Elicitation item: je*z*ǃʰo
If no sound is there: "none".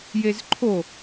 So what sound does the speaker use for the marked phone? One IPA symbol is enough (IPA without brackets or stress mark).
z